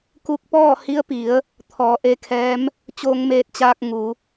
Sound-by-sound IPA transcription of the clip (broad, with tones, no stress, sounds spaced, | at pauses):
k u˧ k̚ p ɔː˥˨ h i˧˥ ə̯ p i˩˧ ə̯ | t̪ʰ ɔː˩˧ ʔ e˧ kʰ ɛː˧˥ m | t͡ɕ oː˧ ŋ m eː˧ t̚ t͡ɕ aː˧ k̚ ŋ u˩˧